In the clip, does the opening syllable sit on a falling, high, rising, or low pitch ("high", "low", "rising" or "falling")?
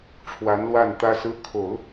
rising